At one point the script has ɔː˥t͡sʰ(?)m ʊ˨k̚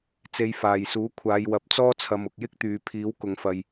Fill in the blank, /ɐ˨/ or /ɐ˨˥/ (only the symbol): ɐ˨